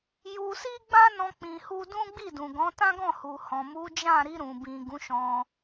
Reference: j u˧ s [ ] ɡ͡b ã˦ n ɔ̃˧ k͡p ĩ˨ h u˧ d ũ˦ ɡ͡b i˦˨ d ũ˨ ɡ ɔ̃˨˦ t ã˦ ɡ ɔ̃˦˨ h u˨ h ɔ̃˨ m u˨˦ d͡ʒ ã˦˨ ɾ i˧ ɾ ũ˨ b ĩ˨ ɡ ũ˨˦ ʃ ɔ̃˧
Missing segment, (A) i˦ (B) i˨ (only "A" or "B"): A